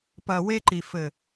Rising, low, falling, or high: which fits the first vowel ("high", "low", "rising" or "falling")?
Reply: low